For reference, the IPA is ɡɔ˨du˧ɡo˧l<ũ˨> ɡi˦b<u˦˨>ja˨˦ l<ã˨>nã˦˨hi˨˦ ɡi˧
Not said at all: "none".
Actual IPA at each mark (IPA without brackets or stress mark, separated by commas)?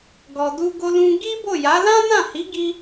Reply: ũ˧, o˦˨, ã˦